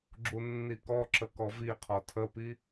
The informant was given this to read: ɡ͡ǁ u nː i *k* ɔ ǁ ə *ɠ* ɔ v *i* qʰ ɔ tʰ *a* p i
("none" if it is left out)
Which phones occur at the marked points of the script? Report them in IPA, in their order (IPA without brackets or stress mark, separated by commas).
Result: k, k, i, ə